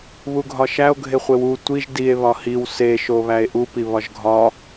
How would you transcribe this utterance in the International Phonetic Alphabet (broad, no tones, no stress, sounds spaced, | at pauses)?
β u ɡʱ ɒ ʃ æ o̯ ɡʱ e χʷ e w u tʷ i ʒ d i e̯ β ɒ h i w s e ʃ o β æ e̯ ʔ u p i β ɒ ʒ ɡʱ ɒ